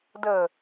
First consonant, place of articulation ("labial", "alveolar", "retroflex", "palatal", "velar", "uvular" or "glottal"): alveolar